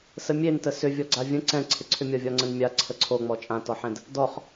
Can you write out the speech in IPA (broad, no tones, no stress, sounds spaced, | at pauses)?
s ə mʲ e n t ə s ʏ vʲ ɔ ɡ͡ǀ a vʲ ə̃ ǀ ɛ̃ ǀʰ ɪ ǀʰ ʏ mʲ ɒ vʲ ɒ ŋ͡ǀ ə̃ n mʲ a ǀʰ ə ǀʰ o ŋ͡m ɔ t͡ʃʼ ã t ɔ ħ ɛ̃ d | d ɔ χ